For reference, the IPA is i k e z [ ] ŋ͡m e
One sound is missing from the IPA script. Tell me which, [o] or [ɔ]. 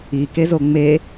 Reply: o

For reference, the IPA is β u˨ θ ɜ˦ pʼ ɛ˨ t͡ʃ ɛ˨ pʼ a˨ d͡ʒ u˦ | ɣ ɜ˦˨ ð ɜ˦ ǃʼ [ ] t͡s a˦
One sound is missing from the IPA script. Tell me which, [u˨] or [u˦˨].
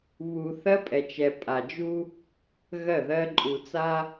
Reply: u˨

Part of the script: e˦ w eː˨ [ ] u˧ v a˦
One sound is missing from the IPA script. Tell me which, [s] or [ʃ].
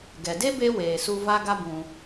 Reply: s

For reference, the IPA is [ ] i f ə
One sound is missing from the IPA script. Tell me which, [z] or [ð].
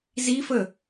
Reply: z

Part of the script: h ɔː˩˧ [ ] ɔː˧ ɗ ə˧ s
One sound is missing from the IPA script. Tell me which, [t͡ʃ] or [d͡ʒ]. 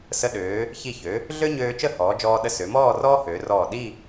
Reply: d͡ʒ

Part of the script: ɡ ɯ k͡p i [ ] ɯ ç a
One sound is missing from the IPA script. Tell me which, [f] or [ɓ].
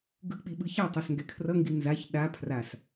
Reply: ɓ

